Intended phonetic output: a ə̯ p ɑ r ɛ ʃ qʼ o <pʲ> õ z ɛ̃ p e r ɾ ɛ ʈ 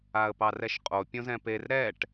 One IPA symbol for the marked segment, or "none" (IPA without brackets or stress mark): pʲ